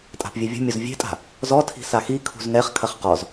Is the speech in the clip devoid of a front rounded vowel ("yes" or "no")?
yes